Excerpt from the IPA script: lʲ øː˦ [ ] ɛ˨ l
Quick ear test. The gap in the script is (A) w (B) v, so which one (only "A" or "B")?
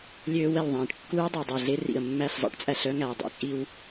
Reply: A